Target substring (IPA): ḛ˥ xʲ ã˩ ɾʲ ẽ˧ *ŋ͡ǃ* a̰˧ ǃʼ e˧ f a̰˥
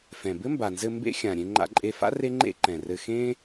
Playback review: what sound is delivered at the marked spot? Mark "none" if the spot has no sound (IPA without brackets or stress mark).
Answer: ŋ͡ǃ